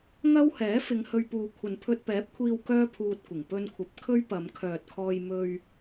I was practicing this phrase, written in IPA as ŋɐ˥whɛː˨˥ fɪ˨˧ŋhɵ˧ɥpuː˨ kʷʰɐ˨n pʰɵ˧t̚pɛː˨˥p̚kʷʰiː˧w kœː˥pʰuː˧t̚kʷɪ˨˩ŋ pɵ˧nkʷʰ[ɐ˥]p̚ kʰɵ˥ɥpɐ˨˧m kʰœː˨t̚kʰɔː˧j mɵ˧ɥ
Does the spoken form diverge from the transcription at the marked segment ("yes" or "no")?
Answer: yes